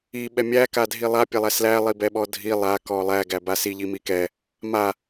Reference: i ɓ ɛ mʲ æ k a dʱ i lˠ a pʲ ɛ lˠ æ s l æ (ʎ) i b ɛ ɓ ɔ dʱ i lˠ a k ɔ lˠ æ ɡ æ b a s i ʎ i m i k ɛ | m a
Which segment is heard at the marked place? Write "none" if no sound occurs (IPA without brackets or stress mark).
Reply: lˠ